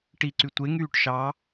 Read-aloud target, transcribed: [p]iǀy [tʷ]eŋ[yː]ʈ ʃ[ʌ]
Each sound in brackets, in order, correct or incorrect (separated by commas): incorrect, correct, correct, incorrect